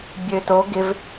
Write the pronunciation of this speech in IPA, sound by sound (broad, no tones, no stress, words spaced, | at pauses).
bʲøto ɡɪv